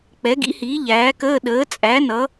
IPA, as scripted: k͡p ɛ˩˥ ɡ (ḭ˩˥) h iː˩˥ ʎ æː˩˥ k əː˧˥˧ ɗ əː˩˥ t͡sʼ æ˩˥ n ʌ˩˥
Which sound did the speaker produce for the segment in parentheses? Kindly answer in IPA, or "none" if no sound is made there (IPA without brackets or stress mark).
ḭ˩˥